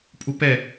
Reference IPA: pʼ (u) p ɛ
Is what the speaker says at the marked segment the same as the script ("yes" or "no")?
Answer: yes